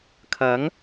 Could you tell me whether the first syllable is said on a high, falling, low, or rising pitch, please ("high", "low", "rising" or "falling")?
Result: rising